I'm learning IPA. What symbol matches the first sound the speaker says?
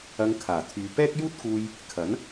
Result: ɐ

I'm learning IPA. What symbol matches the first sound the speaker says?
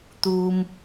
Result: t̪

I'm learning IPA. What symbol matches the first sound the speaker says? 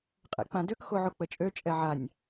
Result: qʼ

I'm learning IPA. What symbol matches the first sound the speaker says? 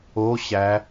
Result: o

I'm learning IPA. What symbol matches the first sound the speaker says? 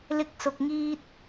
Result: l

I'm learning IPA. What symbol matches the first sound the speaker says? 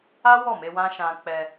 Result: a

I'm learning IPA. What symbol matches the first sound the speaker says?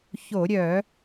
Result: ç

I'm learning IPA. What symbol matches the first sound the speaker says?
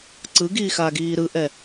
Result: ǀ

